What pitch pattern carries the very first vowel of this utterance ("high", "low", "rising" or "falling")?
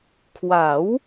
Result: rising